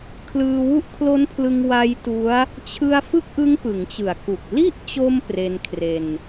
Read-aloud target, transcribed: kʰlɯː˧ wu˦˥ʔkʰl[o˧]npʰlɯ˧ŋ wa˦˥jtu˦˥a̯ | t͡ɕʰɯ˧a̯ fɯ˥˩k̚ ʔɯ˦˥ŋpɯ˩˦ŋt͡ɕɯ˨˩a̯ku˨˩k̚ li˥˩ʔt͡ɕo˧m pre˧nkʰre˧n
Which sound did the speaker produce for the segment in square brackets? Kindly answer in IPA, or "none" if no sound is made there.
o˦˥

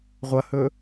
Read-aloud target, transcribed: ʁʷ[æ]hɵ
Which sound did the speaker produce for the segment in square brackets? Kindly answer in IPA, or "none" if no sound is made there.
ɐ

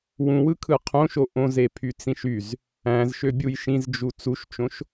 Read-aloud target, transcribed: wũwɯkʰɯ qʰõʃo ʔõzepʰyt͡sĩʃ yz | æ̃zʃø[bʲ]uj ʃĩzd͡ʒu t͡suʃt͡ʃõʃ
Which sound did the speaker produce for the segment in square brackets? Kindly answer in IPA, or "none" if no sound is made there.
bʲ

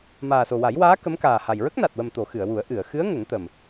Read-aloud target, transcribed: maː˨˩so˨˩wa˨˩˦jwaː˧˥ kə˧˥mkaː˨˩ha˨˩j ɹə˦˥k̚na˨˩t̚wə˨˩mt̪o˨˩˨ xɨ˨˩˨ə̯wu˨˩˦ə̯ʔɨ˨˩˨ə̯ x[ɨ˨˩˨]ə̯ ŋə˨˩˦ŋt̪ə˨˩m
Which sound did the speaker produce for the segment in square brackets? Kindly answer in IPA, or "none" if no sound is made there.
ɨ˧˥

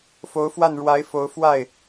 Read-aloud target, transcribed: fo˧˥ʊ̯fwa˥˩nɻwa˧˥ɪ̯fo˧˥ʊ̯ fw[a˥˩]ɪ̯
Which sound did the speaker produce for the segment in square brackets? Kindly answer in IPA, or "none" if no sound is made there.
a˥˩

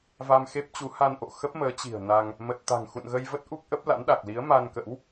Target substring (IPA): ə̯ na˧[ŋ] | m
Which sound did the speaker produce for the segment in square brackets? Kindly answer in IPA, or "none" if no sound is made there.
ŋ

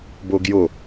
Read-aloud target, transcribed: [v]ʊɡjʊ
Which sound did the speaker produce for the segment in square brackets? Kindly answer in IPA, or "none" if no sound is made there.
b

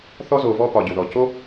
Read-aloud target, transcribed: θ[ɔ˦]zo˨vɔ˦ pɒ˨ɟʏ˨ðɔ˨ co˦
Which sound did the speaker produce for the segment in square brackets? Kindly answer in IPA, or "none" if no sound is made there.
ɔ˦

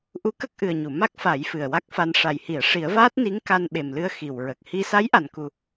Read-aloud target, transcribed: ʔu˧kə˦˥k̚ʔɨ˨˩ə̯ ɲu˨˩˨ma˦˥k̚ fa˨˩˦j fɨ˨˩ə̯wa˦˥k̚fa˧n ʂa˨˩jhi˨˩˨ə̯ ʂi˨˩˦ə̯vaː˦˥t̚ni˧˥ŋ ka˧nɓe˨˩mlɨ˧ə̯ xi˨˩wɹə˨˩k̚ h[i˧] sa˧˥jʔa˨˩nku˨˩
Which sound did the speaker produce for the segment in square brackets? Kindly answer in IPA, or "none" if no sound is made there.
i˧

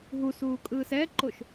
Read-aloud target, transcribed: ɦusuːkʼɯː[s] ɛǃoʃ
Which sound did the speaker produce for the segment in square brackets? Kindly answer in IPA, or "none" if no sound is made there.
s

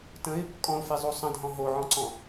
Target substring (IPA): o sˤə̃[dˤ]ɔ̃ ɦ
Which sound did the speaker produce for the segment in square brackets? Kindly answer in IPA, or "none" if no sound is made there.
dʱ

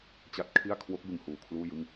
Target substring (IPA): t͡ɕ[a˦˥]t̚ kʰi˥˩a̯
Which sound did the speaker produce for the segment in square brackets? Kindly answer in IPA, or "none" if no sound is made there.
a˥˩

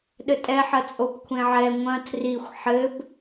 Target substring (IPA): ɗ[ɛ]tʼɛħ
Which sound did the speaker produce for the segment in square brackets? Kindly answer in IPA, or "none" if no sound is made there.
ɘ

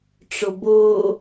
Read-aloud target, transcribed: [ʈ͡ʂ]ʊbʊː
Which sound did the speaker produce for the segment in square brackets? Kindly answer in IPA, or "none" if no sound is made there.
ʈ͡ʂ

